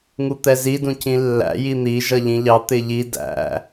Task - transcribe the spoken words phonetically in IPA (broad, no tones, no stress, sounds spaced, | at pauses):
ŋ u t̪ ɛ z i d ũ c ĩ lː æ̰ j i n̪ i ʒ ʌ ʎ ĩ ʎ ɑ t̪ ɪ ʎ i d æ̰